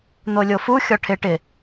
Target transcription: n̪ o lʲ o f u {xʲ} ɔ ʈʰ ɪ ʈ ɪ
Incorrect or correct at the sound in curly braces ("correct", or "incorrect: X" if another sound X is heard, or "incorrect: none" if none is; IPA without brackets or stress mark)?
correct